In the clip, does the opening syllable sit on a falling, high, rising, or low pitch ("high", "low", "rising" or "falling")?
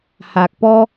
low